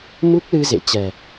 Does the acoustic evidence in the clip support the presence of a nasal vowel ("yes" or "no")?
no